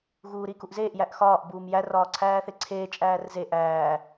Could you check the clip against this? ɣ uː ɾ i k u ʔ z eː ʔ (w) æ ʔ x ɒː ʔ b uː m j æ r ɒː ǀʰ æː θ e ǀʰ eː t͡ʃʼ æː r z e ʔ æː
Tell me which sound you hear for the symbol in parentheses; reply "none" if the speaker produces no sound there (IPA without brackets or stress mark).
j